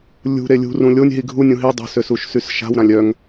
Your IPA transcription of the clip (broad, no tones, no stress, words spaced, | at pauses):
lʲṳɾe lʲṳrũ lʲonʲ ɦiɡʱunʲũ ɦi dˤṳsøs uʃsysʃa̤wɾãlʲ œŋ